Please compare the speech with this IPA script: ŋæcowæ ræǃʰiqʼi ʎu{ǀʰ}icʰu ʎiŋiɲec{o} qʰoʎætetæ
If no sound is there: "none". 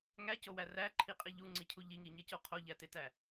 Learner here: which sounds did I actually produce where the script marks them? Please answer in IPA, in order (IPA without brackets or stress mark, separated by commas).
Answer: ŋ͡ǀ, o